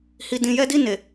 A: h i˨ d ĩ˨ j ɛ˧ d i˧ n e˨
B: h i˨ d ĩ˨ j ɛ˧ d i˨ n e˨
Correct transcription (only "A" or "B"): A